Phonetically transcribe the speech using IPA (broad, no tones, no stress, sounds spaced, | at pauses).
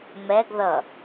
m ɛ ɡ ð ʌ